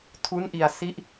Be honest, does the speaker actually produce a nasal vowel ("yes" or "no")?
no